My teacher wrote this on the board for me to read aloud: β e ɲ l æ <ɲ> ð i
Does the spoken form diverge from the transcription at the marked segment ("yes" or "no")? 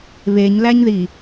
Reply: no